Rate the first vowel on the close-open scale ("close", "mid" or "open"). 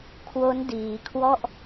mid